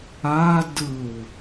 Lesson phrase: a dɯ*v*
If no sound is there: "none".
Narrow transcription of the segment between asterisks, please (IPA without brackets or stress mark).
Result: w